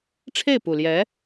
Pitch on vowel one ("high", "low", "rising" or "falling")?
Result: falling